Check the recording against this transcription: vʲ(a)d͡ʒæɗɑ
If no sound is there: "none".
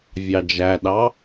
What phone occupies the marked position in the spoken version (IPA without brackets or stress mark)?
ɑ